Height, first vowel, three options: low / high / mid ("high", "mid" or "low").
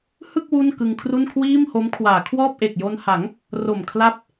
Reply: high